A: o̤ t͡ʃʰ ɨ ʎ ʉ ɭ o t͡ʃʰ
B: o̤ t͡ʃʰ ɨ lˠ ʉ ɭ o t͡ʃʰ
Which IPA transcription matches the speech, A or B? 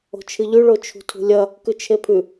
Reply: A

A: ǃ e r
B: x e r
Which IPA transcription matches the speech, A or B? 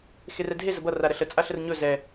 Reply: B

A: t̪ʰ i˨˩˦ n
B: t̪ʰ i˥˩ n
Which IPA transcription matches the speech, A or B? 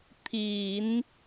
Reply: A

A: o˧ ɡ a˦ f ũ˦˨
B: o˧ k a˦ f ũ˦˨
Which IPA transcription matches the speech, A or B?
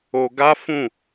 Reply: A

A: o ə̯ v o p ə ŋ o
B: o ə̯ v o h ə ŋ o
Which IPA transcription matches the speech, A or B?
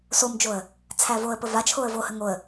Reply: B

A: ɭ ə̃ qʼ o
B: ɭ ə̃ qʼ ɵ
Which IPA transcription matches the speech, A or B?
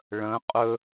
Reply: B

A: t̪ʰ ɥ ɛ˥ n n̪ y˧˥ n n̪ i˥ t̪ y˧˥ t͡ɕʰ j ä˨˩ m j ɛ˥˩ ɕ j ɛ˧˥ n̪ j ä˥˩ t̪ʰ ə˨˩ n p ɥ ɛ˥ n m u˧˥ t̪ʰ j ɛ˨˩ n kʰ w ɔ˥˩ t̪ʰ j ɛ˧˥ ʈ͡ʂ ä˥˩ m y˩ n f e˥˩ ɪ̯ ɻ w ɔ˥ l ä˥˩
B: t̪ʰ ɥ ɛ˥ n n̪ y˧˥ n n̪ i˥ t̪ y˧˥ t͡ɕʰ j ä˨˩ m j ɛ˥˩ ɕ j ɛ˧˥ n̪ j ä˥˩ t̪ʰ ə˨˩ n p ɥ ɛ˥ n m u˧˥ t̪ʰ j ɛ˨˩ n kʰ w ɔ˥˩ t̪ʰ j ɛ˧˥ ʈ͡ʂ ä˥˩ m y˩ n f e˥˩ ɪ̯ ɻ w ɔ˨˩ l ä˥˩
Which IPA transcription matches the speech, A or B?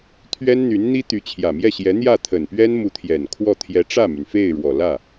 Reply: B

